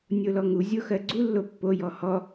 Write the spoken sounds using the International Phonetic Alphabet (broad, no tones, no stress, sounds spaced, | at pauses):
nʲ o l ɔ ŋ u zʲ o x ɜ ɡ͡ǀ u lː o pː o j ɔ h ɔ